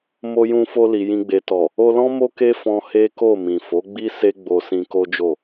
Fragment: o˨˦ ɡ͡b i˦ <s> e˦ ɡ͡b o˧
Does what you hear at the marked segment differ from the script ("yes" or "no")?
no